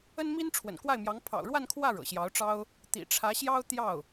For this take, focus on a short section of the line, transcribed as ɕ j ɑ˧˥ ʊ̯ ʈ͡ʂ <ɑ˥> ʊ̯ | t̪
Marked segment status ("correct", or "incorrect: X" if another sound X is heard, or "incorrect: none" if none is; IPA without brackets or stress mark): correct